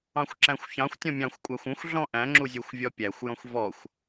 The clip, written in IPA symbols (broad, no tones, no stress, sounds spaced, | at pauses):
ɑ̃ xʷ ǁ æ̃ xʷ ç ɑ̃ xʷ tʲ ɔ̃ mʲ ɑ̃ xʷ kʷʼ æ xʷ ũ xʷ ɮ ɔ̃ ʔ æ̃ ŋ͡ǁ u zʲ u xʷ vʲ ɔ pʲ æ xʷ j ɔ̃ xʷ v ɔ xʷ